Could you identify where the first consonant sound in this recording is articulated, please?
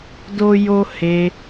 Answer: alveolar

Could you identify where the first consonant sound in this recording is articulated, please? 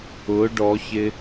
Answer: retroflex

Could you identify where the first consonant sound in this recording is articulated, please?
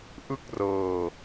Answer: glottal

